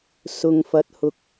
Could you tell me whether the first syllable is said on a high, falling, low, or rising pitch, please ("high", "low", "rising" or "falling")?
low